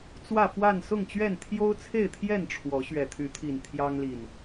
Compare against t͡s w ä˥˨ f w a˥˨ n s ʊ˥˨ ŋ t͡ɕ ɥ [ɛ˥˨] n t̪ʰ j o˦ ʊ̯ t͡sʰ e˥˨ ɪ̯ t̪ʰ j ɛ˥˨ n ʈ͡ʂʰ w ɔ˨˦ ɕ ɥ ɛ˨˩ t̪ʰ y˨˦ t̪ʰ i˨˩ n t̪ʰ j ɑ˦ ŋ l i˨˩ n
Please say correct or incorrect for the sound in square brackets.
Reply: correct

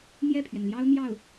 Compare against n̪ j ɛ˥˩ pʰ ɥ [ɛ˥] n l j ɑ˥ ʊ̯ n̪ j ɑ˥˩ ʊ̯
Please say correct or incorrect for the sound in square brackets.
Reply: incorrect: ɛ˩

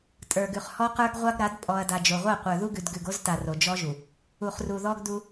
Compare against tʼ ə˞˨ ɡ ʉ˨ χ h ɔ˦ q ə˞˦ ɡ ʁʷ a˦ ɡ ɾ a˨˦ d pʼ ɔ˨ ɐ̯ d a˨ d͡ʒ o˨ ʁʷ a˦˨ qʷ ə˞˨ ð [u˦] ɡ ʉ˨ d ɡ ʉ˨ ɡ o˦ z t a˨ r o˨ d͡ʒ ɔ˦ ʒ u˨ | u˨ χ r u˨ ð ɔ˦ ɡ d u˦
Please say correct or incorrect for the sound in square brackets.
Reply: correct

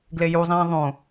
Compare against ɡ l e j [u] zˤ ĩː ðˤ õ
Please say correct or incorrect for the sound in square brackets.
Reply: correct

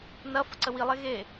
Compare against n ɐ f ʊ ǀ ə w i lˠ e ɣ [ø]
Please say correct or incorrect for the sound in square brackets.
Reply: incorrect: e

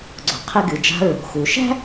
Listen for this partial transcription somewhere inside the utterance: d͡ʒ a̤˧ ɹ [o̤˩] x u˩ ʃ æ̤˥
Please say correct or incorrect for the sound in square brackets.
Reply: correct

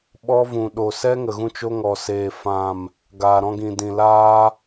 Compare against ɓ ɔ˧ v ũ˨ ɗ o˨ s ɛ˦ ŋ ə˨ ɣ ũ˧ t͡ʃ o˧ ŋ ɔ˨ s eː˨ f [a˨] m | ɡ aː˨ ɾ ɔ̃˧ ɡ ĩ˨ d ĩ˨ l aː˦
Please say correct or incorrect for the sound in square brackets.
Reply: incorrect: ã˨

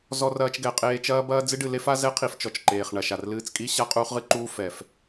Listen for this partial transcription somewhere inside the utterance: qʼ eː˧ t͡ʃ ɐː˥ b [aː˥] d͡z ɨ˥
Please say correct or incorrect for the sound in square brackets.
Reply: incorrect: ɐː˥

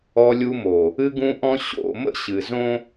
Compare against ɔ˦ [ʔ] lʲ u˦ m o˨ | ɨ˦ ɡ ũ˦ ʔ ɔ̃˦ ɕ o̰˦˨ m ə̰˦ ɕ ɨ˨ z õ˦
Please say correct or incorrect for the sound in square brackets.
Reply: incorrect: none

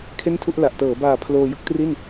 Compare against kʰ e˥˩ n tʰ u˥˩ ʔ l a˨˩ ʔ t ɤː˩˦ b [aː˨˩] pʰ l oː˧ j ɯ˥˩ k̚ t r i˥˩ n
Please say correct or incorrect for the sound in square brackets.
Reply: correct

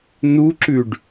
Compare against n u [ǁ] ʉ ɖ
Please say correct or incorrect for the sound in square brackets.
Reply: correct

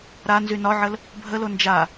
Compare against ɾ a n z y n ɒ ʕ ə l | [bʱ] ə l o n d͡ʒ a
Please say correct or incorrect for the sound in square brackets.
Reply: correct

